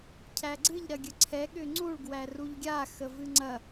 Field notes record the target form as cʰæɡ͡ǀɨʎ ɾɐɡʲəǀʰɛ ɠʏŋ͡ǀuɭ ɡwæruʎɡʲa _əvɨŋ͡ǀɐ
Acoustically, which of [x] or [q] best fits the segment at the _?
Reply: x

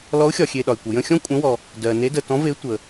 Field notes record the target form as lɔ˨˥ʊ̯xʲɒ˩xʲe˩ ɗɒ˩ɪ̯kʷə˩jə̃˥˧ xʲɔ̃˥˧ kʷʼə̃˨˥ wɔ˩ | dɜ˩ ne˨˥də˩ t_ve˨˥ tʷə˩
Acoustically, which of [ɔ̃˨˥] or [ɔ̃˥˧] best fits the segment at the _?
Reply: ɔ̃˨˥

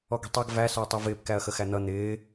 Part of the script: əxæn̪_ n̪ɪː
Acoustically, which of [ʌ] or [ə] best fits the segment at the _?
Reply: ʌ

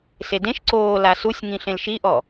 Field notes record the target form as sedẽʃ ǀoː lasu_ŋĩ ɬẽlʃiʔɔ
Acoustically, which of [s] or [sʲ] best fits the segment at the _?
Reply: sʲ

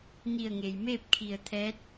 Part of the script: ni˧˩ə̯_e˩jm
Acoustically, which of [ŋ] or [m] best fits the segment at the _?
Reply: ŋ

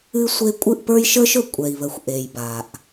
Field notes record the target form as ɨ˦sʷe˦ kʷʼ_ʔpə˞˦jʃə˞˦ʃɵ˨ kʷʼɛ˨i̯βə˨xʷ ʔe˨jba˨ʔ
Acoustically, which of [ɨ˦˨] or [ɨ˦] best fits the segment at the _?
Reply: ɨ˦˨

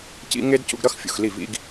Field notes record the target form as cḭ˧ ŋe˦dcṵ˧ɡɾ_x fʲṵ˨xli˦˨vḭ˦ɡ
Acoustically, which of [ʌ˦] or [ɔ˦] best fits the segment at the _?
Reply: ʌ˦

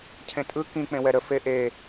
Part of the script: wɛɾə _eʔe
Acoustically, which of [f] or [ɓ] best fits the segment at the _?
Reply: f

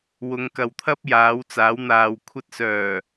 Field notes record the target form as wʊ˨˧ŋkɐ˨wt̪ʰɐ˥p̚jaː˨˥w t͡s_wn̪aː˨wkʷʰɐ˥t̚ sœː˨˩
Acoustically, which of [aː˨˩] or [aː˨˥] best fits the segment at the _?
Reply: aː˨˥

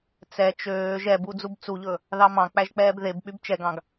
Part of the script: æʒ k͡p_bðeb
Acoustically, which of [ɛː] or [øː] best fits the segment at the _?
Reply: ɛː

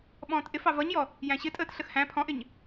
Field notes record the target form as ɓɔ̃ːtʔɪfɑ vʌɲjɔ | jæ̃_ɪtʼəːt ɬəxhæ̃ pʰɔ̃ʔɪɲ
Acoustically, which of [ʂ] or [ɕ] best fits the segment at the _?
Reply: ɕ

